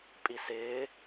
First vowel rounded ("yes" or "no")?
no